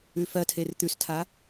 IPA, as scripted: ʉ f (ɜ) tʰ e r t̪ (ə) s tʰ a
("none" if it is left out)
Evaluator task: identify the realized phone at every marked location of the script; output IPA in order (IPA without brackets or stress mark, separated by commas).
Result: ɜ, ʉ